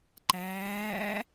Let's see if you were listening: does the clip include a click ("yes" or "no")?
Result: yes